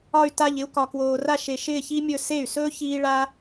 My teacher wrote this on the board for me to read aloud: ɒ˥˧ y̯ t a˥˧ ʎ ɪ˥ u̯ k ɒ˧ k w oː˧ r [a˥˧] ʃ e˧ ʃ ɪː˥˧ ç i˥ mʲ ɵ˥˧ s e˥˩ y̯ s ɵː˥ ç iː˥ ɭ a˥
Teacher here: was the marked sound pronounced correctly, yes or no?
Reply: yes